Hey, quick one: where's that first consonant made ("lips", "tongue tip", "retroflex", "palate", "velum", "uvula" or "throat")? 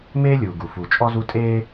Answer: lips